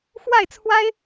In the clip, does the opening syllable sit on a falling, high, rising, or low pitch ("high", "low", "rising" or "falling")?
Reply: falling